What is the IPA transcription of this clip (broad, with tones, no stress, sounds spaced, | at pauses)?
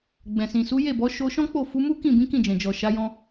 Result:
ɡ͡b ɛ̃˨ s ĩ˨ s u˨˦ j e˦˨ b ɔ˨˦ ʃ o˧ ʃ ɔ̃˦ k͡p o˦˨ f u˨˦ m u˦ k ĩ˦˨ b ĩ˨˦ k ĩ˦˨ d͡ʒ ɛ̃˨ d͡ʒ ɔ˨ ʃ a˨˦ j ɔ̃˧